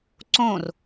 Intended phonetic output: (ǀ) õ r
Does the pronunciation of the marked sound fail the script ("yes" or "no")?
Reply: no